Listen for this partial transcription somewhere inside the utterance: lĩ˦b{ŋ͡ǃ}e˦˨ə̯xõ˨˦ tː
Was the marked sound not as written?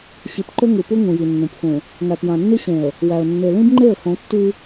no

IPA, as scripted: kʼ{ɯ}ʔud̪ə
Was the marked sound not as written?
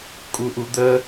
yes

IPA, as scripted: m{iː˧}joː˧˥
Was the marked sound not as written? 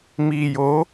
no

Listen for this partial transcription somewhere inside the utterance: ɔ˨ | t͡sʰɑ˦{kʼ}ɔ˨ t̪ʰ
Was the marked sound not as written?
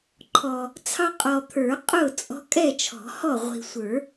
yes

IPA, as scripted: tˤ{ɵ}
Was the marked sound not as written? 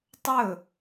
no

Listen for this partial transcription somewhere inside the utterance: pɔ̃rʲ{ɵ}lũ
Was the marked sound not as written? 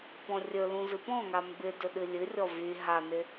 no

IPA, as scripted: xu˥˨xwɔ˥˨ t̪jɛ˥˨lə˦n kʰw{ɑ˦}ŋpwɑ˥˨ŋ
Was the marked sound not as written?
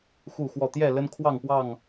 yes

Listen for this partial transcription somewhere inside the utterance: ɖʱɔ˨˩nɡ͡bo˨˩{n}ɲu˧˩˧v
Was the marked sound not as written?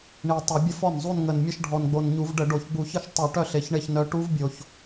no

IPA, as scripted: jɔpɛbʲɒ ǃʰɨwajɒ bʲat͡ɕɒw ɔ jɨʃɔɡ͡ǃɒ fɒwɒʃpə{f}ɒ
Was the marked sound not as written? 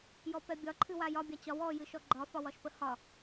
yes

